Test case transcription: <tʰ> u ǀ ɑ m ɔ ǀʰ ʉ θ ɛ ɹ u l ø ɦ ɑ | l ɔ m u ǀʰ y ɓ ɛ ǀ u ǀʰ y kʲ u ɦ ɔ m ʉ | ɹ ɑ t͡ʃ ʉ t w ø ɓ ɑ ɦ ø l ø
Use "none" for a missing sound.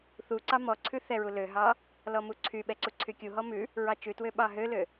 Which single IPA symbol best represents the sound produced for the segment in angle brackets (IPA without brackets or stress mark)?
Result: θ